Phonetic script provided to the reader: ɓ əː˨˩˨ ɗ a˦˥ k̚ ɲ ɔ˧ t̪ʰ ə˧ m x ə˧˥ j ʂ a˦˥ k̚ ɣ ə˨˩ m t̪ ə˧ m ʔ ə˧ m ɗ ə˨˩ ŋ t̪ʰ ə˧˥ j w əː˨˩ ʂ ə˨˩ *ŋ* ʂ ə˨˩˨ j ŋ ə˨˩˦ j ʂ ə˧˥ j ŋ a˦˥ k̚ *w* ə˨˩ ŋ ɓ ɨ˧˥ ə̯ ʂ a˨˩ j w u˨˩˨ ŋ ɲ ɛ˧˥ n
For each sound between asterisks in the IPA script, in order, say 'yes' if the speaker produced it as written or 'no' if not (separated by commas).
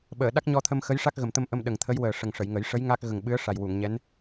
yes, no